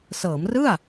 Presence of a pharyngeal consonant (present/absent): absent